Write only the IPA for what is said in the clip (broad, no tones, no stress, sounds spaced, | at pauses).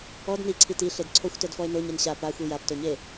ɔ d n i ǀʰ i t i ɬ e d ǀʰ o xʷ t ɛ d f ɔ e̯ n o ɲ e n ɕ a p a xʷ i j a p t o ɲ e